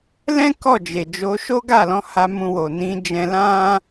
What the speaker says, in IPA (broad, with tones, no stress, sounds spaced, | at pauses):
l ɛ̃˦ k ɔ˦˨ d͡ʒ e˨ d͡ʒ o˨˦ ʃ o˦ ɡ a˦˨ l ɔ̃˨˦ h a˧ m ũ˧ w o˨ n ĩ˨˦ d͡ʒ ɛ̃˧ l ã˦